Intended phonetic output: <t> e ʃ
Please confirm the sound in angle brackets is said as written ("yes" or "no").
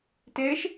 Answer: yes